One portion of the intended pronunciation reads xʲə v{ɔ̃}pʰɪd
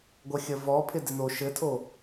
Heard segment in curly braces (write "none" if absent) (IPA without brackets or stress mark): ɔ